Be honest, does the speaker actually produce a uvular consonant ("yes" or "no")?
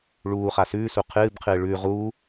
yes